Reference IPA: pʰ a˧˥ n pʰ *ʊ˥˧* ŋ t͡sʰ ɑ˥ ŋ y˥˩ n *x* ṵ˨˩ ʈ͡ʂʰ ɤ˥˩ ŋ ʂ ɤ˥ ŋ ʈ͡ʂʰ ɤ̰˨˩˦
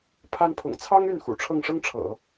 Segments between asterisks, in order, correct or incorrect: incorrect: ʊ̰˨˩, correct

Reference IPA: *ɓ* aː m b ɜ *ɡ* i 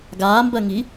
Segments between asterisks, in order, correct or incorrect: incorrect: ɡ, incorrect: ŋ

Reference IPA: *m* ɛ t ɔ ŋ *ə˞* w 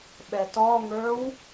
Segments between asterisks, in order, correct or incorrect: incorrect: ɓ, correct

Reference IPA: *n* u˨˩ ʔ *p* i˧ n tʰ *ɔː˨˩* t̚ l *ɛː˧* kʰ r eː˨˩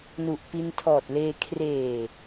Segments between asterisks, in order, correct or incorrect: correct, correct, correct, incorrect: eː˧

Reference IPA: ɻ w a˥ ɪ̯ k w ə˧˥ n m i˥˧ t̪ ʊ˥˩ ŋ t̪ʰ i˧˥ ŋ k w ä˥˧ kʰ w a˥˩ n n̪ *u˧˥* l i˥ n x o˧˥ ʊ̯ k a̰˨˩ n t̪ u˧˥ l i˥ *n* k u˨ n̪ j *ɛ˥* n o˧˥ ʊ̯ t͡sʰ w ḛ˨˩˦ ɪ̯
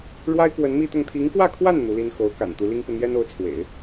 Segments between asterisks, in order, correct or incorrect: correct, incorrect: ŋ, correct

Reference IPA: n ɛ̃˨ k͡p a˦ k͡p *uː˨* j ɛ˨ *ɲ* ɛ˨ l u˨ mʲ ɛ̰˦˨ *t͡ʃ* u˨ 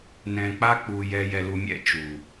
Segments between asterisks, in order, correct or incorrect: incorrect: u˨, incorrect: j, correct

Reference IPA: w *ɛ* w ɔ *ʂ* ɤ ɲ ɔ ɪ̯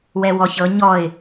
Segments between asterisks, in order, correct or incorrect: correct, incorrect: ç

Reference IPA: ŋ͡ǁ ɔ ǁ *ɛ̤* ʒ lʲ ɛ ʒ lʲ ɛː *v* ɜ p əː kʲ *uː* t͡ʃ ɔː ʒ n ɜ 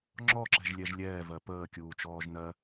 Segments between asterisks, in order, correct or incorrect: correct, correct, correct

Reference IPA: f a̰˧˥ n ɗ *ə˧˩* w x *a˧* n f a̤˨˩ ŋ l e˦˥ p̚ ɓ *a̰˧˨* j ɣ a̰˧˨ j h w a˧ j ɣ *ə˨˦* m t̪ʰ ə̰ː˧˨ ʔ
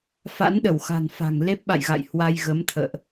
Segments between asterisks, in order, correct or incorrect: correct, incorrect: a̤˨˩, correct, correct

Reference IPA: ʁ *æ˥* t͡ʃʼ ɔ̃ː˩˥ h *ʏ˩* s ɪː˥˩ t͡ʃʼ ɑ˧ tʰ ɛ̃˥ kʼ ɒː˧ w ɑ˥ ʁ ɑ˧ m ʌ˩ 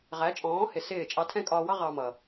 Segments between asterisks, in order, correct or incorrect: incorrect: æ˩˥, incorrect: ɪ˩

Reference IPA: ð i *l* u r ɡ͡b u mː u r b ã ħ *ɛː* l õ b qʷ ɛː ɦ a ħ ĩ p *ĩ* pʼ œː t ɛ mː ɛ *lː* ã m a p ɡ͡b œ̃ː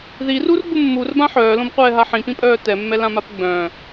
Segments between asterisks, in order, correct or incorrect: incorrect: r, incorrect: œː, correct, incorrect: l

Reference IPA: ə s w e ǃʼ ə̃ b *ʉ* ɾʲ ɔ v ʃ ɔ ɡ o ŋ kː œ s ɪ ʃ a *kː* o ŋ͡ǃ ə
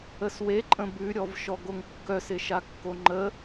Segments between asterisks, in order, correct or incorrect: correct, correct

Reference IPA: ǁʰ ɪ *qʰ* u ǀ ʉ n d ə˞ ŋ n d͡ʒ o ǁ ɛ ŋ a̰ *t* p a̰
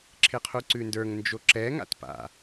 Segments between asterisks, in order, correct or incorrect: correct, correct

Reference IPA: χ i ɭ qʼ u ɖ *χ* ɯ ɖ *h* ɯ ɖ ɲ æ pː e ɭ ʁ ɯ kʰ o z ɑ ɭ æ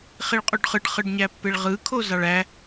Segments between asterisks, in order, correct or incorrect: correct, incorrect: χ

